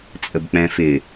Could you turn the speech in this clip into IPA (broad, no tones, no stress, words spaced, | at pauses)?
t͡sʼəbk͡pɛ̃fɪ